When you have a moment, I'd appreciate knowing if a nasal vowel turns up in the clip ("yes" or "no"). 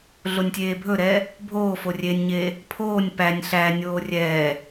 no